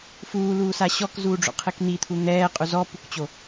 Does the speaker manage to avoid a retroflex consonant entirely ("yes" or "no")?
no